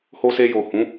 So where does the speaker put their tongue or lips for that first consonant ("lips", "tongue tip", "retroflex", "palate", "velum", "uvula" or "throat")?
throat